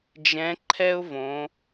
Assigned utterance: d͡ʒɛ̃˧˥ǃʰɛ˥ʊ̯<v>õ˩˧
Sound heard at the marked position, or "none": v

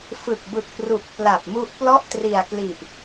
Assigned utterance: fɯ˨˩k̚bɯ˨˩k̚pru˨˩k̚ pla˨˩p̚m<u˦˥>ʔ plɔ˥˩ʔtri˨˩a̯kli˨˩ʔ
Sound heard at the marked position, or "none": u˦˥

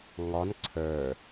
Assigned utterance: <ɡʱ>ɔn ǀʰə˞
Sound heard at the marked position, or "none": ŋ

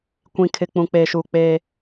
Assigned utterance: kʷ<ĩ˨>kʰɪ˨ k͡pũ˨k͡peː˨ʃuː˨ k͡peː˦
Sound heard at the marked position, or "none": ĩ˨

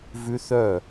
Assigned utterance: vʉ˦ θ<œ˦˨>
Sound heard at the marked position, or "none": œ˦˨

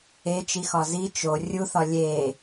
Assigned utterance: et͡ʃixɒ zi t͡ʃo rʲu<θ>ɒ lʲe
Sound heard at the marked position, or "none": θ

